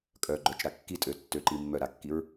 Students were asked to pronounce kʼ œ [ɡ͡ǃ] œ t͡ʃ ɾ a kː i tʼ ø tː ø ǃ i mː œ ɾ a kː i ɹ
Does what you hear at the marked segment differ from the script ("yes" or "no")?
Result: no